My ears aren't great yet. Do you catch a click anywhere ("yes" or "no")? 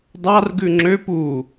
yes